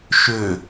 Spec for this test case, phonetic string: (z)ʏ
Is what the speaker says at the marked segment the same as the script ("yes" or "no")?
no